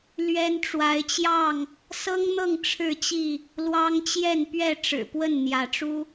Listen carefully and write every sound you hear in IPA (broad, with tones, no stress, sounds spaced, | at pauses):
l ɥ ɛ˦ n ʈ͡ʂ w a˨˦ ɪ̯ t͡ɕ j ɑ˥˨ ŋ | s ɤ˦ ŋ n̪ ɤ˥˨ ŋ ʈ͡ʂʰ ɻ̩˥˨ t͡ɕ i˥˨ | l w ɑ˦ ŋ t͡ɕ j ɛ˥˨ n p ɥ ɛ˥˨ ʈ͡ʂ ɻ̩˨˩ p w ə˥˨ n n̪ j ä˨˦ ʈ͡ʂ u˦